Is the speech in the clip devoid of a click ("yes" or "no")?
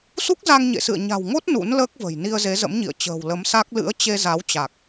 yes